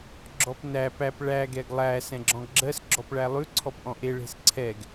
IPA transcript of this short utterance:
ɡ͡ǁɔpnæ pæp ɭæ ɡɛɡlˠæ sɛ̃ɡ͡ǁɔ̃ɡɡ͡ǁɜs ɡ͡ǁɔpɭælˠʉ ǀʰɔpʔɔ̃ʔe ɭe̤sǀʰɛɡ

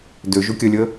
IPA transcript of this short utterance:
dø ʒukʲəlʲə

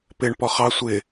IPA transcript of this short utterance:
pɪɳ pɔχɑ sʷɪ

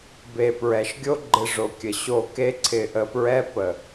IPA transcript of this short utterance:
be˨ pɹɛ˨ʃɡʲo˦ ɡ͡ǃɪ˧ʐo˨kʲə˨ ɕo˧ke˦ ǀʰɪ˧ʔə˧pɹɛ˦ pə˨

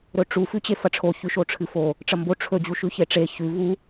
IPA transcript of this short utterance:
ɾɵʈ͡ʂu fʉt͡ɕefɐʈ͡ʂʰo çʉʃoʈ͡ʂʰɨfo | ʈ͡ʂɐmbo ʈ͡ʂʰɵ d͡ʑuʃʉçeʈ͡ʂe çʉ vu

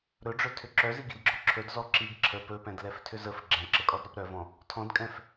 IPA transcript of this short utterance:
ɾɵɖ͡ʐɵtʰʏ ǁœziɡidɡ͡ǁɔ ǁʰɵdzɔ ǁiɡ ǁʰə pɵpɛ̃dlɛftʰʏz əf ɡ͡ǁɛ̃ǁəkʼɔdɾɔp ɾœvɔ̃ | tʰɔ̃dkʼɛ̃f

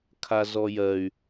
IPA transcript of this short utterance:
kʰazɔjɜy̯

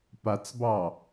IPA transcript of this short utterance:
pat͡sbɑ

